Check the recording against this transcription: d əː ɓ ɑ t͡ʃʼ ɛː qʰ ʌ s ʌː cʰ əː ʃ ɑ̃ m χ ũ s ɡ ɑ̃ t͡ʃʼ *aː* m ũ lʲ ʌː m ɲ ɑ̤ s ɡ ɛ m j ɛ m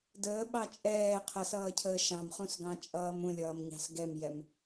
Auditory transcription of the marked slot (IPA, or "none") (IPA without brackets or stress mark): ʌː